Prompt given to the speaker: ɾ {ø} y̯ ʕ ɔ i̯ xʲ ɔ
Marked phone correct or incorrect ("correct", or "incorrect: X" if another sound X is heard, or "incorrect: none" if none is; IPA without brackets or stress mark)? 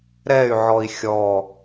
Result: incorrect: ɛ